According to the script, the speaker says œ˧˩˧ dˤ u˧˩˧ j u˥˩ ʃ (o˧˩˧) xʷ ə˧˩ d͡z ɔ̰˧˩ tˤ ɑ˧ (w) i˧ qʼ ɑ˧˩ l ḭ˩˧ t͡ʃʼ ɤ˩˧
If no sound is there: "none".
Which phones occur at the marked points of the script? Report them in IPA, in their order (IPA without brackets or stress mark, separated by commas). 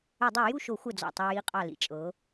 o˧˩˧, j